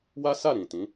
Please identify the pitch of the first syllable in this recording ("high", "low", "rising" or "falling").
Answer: high